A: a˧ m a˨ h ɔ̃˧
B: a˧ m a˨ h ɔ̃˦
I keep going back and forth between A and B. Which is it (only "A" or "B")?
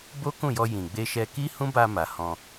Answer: A